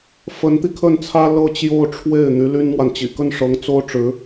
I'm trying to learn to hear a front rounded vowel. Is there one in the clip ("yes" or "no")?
yes